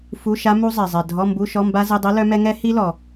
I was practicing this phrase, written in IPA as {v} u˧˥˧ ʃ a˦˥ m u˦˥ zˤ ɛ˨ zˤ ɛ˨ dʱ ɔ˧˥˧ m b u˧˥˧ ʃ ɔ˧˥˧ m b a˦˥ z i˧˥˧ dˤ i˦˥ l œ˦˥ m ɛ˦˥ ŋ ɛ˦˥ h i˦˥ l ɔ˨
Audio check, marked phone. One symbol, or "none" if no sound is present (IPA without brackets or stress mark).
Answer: f